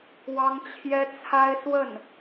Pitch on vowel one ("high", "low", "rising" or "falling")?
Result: high